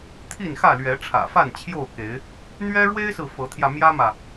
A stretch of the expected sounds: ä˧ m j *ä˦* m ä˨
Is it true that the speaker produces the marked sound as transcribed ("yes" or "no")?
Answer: yes